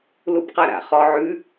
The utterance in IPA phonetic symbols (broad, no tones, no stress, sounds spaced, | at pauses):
l u b q a ɾ a̰ χ ɔ ʕ ʉ